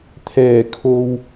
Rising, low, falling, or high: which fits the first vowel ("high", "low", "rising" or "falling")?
low